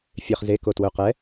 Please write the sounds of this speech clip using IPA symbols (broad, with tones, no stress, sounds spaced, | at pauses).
fʲ e˧˥˧ χ z e˧˥˧ k o˧˩ t w ɵ˧˩ q ɛ˧˥